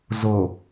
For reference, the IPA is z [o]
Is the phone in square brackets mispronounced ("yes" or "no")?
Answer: no